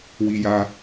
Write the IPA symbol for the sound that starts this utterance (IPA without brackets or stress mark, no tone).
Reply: w